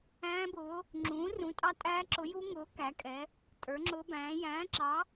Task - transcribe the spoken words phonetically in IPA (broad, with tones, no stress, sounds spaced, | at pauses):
æ̃ː˦˥ b ʊː˨˥ | ŋ͡ǁ ũː˨˥ r ũ˨˥ tʼ ɑ˦˥ tʼ æː˦˥ ǁ ʊ˨˥ j u˦˥ ŋ ʊː˨˥ k æ˨˥ kʼ ɛ˨˥ | tʼ ə˞˨˥ ŋ͡ǁ ʊː˦˥ b æ̃ː˨˥ j æ̃ː˨˥ ǁ ɑ˨˥